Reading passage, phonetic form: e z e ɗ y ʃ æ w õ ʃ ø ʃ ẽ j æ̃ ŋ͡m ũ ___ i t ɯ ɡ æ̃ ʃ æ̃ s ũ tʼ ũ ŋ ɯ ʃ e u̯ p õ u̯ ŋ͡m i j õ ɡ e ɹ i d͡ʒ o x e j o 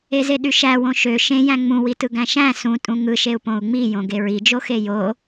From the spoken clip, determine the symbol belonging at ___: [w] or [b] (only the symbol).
w